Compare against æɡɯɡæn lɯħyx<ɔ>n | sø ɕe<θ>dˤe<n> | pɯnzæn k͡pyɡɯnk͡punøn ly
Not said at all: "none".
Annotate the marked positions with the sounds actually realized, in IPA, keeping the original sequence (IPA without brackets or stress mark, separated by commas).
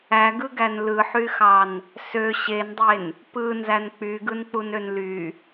ɑ, n, n